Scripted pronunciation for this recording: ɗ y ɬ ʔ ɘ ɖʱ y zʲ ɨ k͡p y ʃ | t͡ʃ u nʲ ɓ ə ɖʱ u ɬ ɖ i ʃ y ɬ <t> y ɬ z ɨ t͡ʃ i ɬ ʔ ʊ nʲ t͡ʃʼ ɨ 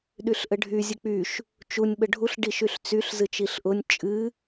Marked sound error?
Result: yes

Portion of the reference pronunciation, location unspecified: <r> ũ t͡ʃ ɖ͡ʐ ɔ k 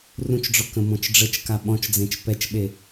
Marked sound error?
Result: no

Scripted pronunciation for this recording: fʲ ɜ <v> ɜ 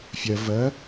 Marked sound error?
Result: no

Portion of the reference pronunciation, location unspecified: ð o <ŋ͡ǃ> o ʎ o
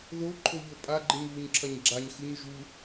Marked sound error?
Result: yes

